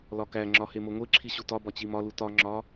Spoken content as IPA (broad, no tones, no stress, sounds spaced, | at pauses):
l ɒ k æ ŋ͡ǁ ɒ h e m o ŋʷ e ǁʰ i ɕ u t ɒ b ɒ t͡ɕ i m ɒ l u t ɒ ŋ͡ǁ ɒ